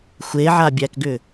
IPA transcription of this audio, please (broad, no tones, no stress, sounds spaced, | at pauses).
xʷ e ʕ a bʲ æ k ɡ ʏ